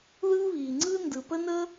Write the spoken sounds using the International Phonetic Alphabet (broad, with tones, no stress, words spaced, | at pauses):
ðɯː˥βiː˩ŋ͡ǀɯː˥ ndɯ˩pə˥nə˥